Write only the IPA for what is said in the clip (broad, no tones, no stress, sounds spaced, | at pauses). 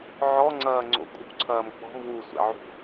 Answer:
ʕ ɔ ŋ͡ǀ ɐː ŋ͡ǀ o̰ kʼ ṳ ǀʰ ɐː m k͡p ɔ̤ m w u sʷ ɛ̰ ʕ ṳ